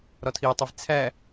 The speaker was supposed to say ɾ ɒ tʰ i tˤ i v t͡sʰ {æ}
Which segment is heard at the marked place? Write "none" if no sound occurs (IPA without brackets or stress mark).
æ